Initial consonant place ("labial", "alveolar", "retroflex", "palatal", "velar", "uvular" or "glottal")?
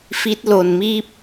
labial